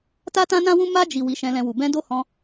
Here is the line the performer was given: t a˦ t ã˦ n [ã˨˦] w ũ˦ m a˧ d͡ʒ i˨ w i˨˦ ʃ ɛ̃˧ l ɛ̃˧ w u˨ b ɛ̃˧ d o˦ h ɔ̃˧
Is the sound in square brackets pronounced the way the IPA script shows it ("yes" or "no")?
no